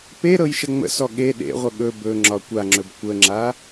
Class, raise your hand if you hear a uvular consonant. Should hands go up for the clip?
yes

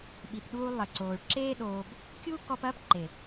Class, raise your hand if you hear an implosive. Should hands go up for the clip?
yes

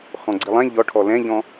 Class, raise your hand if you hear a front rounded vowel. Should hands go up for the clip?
no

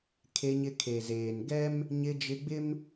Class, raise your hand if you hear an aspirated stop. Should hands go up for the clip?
yes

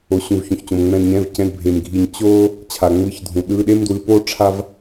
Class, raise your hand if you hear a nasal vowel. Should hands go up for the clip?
yes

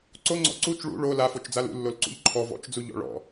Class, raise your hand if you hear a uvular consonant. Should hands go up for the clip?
no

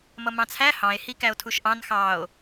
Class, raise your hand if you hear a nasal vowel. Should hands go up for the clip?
yes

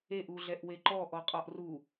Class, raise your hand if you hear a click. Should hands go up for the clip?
yes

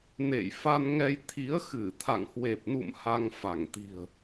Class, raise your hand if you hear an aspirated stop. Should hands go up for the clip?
yes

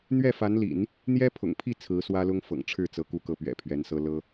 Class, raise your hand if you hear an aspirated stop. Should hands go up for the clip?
yes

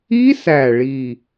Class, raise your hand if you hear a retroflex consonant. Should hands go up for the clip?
yes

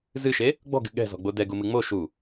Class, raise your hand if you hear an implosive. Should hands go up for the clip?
yes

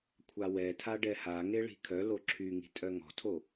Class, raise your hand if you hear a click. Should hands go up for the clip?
yes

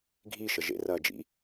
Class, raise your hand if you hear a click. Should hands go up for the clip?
no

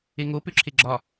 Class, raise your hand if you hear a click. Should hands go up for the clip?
yes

